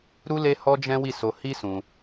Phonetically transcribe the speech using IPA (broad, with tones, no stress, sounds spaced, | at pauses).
ɾ u˦ l e˦ h ɔ˦ d͡ʒ ɛ̃˦ w i˦˨ s o˧ h i˦ s ũ˧